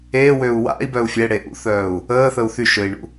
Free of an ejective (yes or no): yes